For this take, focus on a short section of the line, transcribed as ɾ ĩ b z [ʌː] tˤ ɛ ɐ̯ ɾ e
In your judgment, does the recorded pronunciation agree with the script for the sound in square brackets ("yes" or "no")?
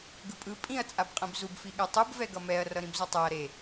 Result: no